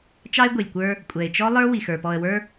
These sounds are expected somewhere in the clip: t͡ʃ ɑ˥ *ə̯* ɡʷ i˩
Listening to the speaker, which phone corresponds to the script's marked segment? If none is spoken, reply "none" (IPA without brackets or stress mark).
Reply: ɪ̯